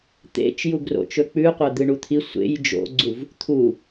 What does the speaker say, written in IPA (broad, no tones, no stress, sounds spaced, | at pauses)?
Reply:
t̪ ḛ t͡ʃ j u ɡ r o̰ t͡ʃ ɵ k͡p ʉ qʷ ɐ d̪ ɨ ɳ u t̪ʰ i sʷ ḛ j d͡ʒ o̰ ɡ͡ǀ u v | t̪ʰ u